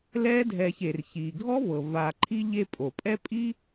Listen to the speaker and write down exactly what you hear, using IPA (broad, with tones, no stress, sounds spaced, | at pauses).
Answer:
l ɛː˦ dʱ ɛː˨ ç e˩ r ç iː˩ ɡʱ ɔ˦ v ɤ˩ v a˨ ǃʰ i˦ ʎ e˦ pʼ o˩ pʼ ɛ˥ pʼ i˥